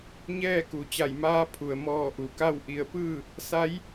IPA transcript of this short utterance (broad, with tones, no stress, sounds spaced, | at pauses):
ɲ ɛː˥˨ k u˩˧ t͡ɕ a˧˩ j m aː˧˥ pʰ u˩ ə̯ m ɔː˧˩ ʔ u˩ k a˥˨ w ʔ i˧˩ ə̯ p ɯː˥˨ | s a˧˥ j